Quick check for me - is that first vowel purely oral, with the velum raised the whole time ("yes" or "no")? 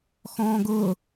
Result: no